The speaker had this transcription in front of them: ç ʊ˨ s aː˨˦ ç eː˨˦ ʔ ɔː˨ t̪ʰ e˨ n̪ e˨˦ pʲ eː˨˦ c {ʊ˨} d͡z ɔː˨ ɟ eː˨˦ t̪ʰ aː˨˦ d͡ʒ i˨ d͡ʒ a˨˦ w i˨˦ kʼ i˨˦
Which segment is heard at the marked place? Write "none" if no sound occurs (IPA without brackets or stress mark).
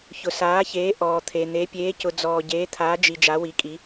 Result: ʊ˨